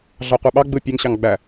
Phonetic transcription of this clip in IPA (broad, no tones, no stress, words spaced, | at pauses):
ɮɑqʷɯɓɑ ɡ͡bɯ pʲeŋ ɕɑŋɡ͡bæ